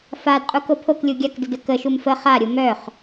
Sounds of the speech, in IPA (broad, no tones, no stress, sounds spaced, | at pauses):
f a d qʼ u k o pʰ o k lʲ u ɡʲ a k d ə d ə k ə ʃ u m f ə χ a ɾʲ u m œ χ